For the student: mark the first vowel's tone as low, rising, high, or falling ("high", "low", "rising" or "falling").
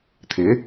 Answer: rising